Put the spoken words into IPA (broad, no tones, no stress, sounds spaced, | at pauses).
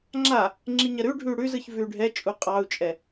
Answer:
ŋ͡ǁ a | ŋ͡ǁ i ɲ ɐ ɾ ʉ ɖʱ ʉ y̯ ɽ ʉ z ɯ ç v ʉ y̯ ɖʱ ɛ t͡ʃʼ u qʼ ɑ u̯ t͡ʃʼ ɛ